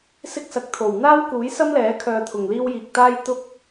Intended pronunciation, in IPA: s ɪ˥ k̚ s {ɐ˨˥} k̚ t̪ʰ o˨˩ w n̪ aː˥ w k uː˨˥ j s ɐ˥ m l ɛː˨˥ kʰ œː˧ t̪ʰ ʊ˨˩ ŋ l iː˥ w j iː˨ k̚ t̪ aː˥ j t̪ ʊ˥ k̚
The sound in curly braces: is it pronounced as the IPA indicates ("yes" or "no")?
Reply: yes